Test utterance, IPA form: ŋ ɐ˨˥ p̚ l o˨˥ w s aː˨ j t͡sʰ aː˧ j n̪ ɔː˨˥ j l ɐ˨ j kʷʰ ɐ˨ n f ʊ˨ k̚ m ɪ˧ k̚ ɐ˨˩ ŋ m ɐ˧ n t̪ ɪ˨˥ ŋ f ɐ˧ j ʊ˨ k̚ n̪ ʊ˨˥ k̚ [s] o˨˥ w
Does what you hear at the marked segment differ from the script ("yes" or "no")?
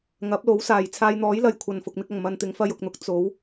yes